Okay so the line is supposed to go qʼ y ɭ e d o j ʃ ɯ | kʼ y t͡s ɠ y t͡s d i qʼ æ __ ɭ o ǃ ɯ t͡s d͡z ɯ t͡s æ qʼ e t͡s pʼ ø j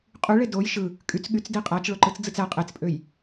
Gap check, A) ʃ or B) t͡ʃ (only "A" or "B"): B